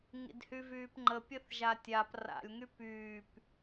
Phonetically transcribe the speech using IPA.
ŋ ḭ d h y v yː p ŋ͡ǃ ə pʲ ə θ ʒ a tʲ a p r a̰ lʲ ŋ y p yː p

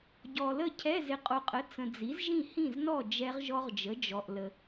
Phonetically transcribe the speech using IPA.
ɟ ɔ˨ l ə˥˨ cʰ ɛ˧˥˧ z ɪ˨ qʼ o˨ qʼ ə˩˥ t͡s ə̃˨ d͡z i˩˥ z ʒ ĩ˥˨ h ĩ˥˨ z n ɔ˥˨ d͡ʒ ɛ˦˥ ʁ ʒ ɔ˦˥ ʁ d͡ʒ ə˩˥ d͡ʒ ɔ˨ ʔ l ə˨

